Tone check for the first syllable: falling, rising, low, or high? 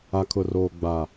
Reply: low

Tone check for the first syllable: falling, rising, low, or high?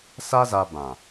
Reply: high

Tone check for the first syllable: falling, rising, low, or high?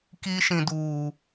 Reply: high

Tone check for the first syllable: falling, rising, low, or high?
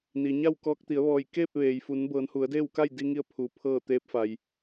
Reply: low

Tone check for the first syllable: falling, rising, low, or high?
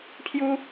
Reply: high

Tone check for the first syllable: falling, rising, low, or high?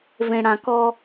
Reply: low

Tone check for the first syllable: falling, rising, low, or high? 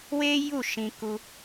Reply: high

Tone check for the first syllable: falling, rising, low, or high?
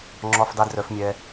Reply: high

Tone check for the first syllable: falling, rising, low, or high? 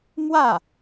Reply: falling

